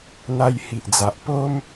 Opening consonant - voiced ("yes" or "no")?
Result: yes